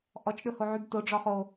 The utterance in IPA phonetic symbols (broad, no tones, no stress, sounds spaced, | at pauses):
ʔ ɔ t͡ʃ ɗ ɵ h o ʕ y b t o ɖ͡ʐ ɔ χ o